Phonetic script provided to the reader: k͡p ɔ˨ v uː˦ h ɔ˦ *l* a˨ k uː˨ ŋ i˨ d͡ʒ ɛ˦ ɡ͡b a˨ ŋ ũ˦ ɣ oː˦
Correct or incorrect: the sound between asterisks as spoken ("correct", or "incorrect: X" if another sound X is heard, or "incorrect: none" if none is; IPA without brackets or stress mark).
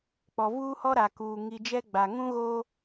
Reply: incorrect: ɾ